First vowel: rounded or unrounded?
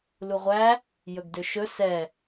rounded